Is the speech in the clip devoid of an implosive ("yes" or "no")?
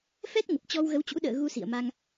no